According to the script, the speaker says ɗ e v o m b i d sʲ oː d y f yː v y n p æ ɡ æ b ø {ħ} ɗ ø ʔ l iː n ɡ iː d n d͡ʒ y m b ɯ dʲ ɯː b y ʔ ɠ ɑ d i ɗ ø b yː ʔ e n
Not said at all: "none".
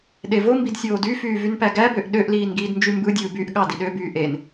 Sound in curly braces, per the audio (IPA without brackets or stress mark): ʔ